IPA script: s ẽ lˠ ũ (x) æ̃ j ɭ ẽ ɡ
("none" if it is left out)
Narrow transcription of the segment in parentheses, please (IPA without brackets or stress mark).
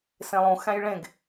x